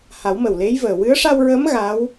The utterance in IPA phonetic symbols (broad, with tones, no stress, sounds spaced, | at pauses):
h a˨˩˦ w m ə˨˩ w l e˧˥ j v əː˨˩ w ɨ˧˥ ə̯ ʂ a˧ w ɹ əː˧˥ m ɣ a˧˥ w